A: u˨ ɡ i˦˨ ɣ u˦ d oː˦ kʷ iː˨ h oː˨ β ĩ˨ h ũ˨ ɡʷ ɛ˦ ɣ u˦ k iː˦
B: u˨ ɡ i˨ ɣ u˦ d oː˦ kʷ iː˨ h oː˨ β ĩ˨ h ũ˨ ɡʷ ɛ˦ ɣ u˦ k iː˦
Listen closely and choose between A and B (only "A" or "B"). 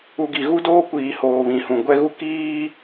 B